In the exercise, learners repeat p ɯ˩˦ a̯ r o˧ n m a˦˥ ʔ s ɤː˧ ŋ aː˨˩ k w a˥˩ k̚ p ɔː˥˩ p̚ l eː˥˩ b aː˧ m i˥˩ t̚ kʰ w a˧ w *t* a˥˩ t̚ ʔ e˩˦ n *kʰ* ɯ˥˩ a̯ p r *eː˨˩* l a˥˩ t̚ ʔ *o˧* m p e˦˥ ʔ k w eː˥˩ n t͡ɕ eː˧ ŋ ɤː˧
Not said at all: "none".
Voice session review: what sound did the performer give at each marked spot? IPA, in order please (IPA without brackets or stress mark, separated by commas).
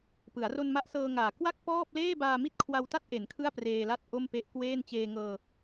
t, kʰ, eː˧, o˥˩